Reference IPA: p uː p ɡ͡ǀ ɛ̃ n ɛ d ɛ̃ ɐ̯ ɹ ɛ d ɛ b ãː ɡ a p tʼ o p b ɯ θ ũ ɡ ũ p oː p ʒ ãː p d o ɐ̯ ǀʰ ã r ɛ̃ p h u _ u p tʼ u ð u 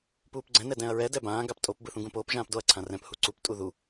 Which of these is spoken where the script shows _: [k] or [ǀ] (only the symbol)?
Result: ǀ